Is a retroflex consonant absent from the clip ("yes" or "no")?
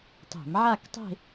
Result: yes